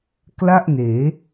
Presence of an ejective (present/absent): absent